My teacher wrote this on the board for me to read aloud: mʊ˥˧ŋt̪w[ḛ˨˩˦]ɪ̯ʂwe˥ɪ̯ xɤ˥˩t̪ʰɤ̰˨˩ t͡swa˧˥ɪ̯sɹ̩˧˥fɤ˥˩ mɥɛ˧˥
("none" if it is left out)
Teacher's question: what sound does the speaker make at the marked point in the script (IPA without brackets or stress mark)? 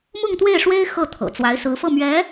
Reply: e˥˩